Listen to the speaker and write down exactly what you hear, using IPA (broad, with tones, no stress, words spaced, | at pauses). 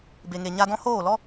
be˨ŋe˨ ɲa˧dɔ̃˦ hoː˦˨lɔ˦